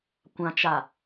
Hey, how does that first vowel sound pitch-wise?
low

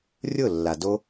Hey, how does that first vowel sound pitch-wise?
falling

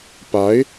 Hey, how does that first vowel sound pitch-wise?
rising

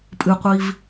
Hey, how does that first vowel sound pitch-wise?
low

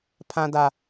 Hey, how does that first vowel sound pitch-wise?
high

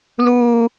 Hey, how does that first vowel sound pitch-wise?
high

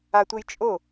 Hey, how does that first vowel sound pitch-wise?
high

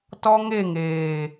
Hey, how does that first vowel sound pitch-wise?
high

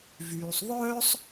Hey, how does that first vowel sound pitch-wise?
low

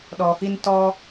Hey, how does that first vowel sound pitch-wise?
low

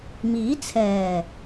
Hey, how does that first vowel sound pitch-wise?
rising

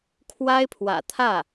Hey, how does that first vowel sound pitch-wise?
high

